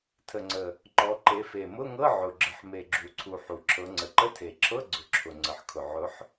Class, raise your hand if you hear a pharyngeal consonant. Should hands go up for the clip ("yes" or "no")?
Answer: yes